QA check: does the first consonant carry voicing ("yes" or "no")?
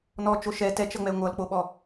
yes